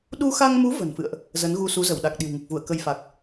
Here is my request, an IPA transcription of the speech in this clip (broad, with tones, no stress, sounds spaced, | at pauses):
ɗ u˧ x a˧ ŋ m u˨˦ v ə̤˨˩ n f ɨ̰˧˨ ə̯ ʔ | z ə˨˦ n ɣ u˧ s u˨˦ z ə˧˩ w ɗ a˨˩ k̚ ɗ i̤˨˩ w ŋ ɨ˨˩ k̚ v u˧˩ ə̯ k ə˧ j f a˨˩ k̚